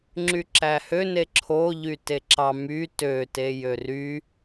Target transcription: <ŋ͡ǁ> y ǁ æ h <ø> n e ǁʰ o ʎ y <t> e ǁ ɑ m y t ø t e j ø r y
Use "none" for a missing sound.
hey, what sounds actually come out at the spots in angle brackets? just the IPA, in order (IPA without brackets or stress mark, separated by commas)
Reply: ŋ͡ǁ, ø, t